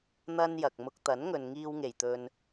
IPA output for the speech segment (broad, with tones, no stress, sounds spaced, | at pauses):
n̪ ɐ˧ n j ɐ˨ k̚ m ʊ˧ k̚ t̪ ɐ˨˥ n ŋ ɵ˨ n ŋ iː˧ w ŋ e˨˩ j t̪ ɵ˨ n